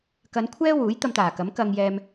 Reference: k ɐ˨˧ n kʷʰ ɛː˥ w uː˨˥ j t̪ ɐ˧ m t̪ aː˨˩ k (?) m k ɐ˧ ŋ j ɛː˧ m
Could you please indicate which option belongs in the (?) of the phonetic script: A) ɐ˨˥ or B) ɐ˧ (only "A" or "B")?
A